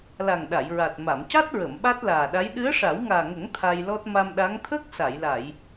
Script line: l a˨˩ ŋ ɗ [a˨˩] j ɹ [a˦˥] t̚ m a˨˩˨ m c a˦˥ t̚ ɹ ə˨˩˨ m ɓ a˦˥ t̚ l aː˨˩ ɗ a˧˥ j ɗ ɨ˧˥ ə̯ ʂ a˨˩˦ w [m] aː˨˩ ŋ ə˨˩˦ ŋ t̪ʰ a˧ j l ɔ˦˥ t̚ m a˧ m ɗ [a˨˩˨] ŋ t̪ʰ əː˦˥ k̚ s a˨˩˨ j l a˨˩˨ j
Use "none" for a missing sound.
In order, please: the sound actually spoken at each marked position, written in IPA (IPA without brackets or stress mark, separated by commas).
a˨˩˨, a˨˩, ŋ, a˧˥